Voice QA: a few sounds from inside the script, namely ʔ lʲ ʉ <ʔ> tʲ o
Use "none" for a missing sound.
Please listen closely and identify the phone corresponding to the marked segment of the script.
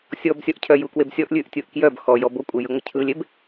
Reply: ʔ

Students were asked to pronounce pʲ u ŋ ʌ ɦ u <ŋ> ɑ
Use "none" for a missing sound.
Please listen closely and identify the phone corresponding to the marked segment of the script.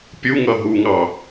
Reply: ŋ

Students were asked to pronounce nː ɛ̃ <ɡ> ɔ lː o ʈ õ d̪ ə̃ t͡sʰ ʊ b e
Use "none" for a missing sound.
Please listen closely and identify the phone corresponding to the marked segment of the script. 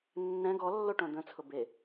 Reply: ɡ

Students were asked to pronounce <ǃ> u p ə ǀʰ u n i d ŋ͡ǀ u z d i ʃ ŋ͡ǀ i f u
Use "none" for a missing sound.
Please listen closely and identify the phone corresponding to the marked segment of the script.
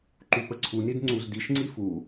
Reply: ǃ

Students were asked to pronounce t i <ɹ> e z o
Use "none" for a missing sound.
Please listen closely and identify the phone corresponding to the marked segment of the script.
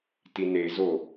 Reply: n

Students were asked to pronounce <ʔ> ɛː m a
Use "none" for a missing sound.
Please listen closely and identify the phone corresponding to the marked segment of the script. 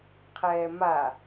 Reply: qʰ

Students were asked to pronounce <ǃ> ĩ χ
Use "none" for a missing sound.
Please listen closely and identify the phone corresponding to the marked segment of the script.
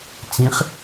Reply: t͡s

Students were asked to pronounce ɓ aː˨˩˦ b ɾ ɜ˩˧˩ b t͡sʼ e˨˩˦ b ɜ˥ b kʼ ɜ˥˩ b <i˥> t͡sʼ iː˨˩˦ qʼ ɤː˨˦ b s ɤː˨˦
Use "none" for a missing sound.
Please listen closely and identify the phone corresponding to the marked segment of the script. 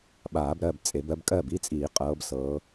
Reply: i˥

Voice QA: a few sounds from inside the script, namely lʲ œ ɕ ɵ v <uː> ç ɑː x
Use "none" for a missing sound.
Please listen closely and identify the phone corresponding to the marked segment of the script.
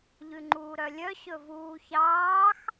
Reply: uː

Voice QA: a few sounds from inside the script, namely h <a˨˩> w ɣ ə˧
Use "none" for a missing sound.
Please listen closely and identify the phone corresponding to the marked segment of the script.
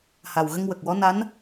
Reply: a˨˩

